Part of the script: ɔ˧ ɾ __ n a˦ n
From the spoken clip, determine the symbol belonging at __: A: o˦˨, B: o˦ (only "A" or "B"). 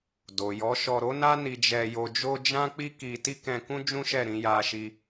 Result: B